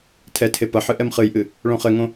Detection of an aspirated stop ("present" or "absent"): present